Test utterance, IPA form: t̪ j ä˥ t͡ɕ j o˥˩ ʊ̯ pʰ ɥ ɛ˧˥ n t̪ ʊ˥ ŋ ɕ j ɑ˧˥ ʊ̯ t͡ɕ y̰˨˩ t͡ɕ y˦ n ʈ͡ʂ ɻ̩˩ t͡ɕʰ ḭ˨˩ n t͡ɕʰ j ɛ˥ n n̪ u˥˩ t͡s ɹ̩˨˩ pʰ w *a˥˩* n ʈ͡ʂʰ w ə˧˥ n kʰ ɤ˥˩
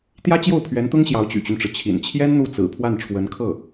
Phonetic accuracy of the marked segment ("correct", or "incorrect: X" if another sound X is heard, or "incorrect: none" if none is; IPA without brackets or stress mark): correct